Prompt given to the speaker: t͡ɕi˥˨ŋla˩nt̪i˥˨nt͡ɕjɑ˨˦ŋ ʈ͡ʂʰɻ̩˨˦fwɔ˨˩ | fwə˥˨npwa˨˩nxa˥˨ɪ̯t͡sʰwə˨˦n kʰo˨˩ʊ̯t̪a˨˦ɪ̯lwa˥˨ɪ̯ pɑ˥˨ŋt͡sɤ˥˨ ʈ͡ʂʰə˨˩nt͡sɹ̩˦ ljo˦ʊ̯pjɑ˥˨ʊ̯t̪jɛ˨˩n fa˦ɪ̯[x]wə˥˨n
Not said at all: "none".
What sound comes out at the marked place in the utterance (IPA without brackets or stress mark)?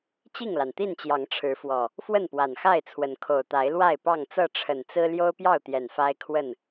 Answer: kʰ